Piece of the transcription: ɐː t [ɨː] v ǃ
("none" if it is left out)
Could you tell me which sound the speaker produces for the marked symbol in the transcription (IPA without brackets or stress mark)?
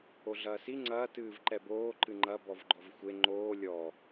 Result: ɨː